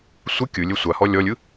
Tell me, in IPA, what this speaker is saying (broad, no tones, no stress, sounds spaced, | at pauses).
sʷ ɯ kʲ ɯ lʲ e sʷ a h ɔ lʲ ɔ lʲ ɯ